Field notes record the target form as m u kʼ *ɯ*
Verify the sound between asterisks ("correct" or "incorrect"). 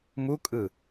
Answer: correct